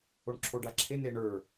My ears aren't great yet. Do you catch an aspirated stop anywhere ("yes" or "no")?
yes